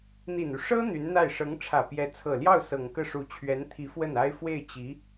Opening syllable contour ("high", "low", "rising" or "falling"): low